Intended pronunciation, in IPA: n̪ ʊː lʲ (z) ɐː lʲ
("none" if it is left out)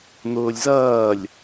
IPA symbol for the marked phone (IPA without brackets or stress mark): z